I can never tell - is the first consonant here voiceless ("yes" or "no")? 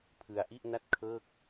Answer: yes